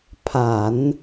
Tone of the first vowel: low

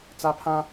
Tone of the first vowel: high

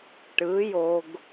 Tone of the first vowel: rising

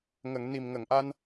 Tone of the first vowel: low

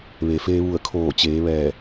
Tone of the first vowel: low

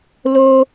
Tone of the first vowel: high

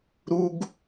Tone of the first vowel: high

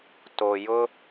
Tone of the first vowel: low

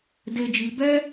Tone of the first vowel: high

